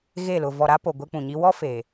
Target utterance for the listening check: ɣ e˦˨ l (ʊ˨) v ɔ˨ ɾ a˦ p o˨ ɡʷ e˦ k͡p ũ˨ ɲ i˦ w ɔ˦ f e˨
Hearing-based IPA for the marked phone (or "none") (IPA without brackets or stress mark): ʊ˨